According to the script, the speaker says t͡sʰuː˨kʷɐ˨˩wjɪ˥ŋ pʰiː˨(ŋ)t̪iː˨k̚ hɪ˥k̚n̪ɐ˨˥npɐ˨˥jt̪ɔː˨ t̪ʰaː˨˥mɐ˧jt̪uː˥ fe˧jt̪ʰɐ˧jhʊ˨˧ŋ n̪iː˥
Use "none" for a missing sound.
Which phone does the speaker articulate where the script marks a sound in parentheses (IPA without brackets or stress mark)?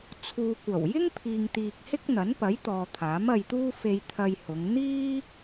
ŋ